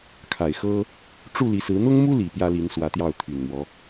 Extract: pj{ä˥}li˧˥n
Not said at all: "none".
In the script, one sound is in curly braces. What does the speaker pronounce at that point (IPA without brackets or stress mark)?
ä˥